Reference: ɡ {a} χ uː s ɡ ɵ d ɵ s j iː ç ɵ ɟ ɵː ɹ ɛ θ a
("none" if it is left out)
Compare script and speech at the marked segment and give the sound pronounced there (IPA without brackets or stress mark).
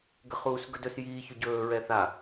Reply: ə